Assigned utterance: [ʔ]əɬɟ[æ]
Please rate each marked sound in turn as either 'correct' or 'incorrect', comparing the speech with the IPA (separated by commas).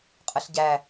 incorrect, correct